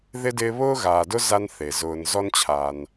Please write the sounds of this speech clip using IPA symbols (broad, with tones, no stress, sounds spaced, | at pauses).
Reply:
ð ɪ˥ d ɪː˦ β ʊː˥ ɣ aː˨ d ʊ˥ z a˦ n θ e˩ z ʊː˨ n z ɔ˥ n t͡ɕʰ aː˨ n